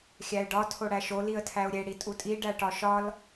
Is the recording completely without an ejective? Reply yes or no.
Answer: no